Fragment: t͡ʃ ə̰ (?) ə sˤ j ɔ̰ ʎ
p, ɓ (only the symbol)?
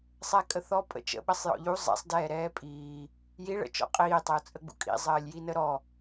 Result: ɓ